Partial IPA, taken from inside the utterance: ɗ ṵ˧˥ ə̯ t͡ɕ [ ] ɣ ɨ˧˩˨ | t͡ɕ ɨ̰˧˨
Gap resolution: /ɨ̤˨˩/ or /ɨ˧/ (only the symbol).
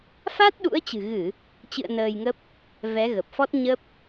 ɨ̤˨˩